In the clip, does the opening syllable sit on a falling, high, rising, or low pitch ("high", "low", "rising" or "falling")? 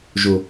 low